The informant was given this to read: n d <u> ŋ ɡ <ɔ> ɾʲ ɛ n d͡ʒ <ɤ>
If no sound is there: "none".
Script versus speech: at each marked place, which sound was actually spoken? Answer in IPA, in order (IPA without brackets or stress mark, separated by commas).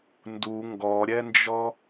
u, ɔ, ɔ